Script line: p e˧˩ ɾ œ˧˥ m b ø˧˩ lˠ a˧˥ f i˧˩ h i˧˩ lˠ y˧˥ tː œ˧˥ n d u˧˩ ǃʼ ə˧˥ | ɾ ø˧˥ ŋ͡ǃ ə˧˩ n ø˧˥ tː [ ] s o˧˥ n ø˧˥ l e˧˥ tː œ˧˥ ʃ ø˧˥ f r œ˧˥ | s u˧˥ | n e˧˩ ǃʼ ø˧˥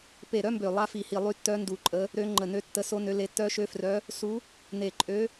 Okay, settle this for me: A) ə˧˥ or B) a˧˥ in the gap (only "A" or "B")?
A